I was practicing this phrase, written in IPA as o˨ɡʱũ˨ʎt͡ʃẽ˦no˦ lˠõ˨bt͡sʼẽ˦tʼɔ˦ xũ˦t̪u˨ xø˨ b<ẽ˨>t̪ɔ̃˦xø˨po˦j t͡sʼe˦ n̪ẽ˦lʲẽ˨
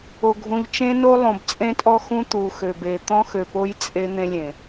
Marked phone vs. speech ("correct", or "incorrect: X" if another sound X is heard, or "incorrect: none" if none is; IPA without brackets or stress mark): incorrect: e˨